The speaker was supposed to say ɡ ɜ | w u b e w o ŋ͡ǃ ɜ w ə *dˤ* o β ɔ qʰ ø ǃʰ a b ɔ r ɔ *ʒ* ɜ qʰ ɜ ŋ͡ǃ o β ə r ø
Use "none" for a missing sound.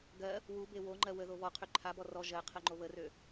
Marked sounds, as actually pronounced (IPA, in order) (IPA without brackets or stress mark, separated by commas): ð, ʒ